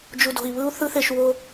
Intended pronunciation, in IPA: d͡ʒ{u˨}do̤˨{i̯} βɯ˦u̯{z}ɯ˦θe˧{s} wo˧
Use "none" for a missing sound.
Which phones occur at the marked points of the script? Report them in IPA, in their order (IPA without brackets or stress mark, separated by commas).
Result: u˨, i̯, θ, ʃ